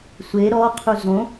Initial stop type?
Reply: aspirated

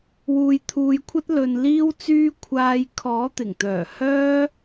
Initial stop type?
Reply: aspirated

